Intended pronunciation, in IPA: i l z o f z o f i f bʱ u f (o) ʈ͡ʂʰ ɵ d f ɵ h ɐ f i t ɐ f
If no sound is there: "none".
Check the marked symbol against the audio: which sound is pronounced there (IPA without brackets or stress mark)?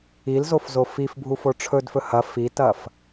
o